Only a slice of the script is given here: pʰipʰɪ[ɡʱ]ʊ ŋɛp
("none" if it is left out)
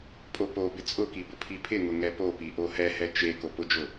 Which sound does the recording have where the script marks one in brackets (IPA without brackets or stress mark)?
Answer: ŋ